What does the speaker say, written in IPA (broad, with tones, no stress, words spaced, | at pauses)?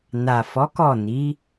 na˨fɔ˨˦kɔ˦˨ni˨˦